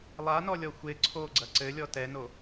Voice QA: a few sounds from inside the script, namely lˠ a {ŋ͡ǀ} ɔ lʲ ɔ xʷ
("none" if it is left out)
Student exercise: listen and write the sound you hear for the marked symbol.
n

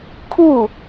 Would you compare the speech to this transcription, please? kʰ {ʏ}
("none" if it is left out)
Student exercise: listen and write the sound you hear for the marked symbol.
u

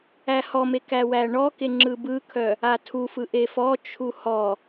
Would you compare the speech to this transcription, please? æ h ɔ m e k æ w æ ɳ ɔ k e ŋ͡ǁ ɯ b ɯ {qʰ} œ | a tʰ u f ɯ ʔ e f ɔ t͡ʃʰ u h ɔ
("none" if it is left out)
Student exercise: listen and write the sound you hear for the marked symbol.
kʰ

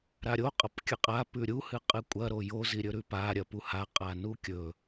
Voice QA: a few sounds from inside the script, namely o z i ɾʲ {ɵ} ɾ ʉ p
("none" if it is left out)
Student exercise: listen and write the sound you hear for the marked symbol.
ɵ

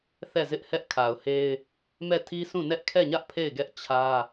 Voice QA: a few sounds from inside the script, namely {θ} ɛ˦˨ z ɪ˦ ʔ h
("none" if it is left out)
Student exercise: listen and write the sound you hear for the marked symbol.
θ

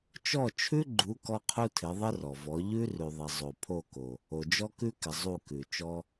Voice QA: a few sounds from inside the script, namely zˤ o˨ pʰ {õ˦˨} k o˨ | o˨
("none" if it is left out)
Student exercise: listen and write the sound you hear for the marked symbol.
o˦˨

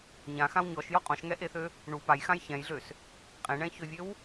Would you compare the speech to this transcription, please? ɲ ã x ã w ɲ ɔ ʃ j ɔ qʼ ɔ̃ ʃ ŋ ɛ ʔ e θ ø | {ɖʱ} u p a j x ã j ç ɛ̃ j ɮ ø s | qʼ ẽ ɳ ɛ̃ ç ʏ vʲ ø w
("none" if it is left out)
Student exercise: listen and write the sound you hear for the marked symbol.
ɳ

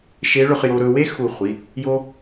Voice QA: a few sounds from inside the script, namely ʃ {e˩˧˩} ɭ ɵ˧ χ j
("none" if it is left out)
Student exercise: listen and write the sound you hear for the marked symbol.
e˧˥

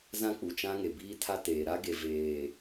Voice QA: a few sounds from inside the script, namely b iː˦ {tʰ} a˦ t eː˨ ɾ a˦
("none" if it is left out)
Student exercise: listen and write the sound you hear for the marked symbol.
tʰ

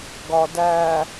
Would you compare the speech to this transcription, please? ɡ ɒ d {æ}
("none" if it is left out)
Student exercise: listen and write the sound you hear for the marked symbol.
æ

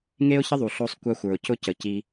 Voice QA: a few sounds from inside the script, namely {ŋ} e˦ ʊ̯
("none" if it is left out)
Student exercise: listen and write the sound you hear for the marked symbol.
ŋ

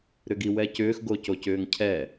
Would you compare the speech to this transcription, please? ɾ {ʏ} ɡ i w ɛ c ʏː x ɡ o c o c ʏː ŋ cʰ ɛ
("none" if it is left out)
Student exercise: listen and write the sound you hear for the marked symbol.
ʏ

